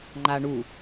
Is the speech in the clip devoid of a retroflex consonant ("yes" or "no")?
no